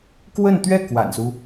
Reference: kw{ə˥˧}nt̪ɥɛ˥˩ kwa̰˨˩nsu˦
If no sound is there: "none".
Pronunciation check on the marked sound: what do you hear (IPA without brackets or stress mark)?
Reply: ə˥˧